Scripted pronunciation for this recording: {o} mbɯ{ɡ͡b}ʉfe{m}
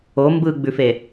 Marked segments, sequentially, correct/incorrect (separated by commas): correct, correct, incorrect